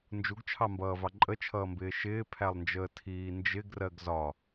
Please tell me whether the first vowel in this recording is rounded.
yes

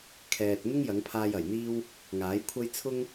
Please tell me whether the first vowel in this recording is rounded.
no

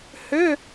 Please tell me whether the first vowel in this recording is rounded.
yes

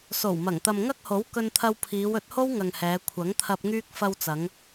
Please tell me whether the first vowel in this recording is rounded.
yes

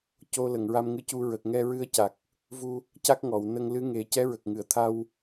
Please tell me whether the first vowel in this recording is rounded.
yes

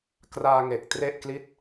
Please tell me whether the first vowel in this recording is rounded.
no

